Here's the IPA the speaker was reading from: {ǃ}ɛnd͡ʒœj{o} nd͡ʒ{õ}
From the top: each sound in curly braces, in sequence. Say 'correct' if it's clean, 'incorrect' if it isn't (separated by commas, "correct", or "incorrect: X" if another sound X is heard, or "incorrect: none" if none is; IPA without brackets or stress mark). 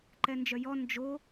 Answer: correct, incorrect: ɔ, incorrect: o